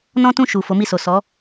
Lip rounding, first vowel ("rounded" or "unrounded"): rounded